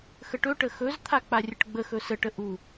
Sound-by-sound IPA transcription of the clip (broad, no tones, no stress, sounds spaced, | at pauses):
x ə ʈ ɵ ʈ ə x ɵ z t̪ʰ a k͡p a rʲ ə ʈ ɡ͡b ə x ɵ s ə ʈ ə ʔ u